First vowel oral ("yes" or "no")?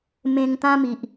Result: no